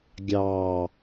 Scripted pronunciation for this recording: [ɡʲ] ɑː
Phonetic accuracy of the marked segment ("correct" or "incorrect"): correct